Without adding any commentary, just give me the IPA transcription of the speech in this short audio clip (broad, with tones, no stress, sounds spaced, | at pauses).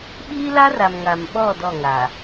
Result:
ɓ iː˦ l a˦ r a˨ m ŋ a˨ m ɓ ɔ˦˨ d ɔ˦˨ ŋ a˨